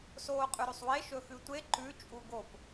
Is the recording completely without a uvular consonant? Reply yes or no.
no